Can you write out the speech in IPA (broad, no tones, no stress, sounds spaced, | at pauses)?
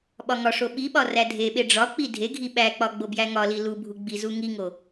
ɓ ɒ ŋ ɒ ʂ o ɓ i ɓ ɒ r æ dʱ e ɓ e ɖ͡ʐ ɒ k͡p i dʱ e ɡʱ i ɓ æ k͡p ɒ ɡ͡b o b j æ ŋ ɒ l i l u bʱ u ɡ͡b i z u ŋ i ŋ o